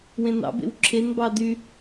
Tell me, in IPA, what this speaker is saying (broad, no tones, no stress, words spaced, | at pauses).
wẽnɑ̰bḛw ǁʰenbɑ dy